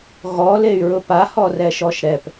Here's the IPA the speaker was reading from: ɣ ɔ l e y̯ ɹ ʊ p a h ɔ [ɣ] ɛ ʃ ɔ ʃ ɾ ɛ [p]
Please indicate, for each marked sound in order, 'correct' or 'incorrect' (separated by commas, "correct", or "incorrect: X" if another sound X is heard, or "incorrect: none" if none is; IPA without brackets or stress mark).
incorrect: r, correct